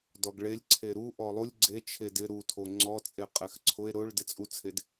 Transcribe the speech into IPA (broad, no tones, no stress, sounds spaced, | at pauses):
d ɔ ɡ ɭ e lʲ ǀʰ e ɾ u ʔ ɔ lˠ u lʲ ɡ͡ǀ e t͡ʃʰ e d ɪ ɾ u tʰ o ŋ͡ǀ ɔ t͡sʼ e qʼ ɛ x ǀʰ ʊ e̯ ɾ ʊ ɭ d ɪ t͡sʼ u t͡sʰ e d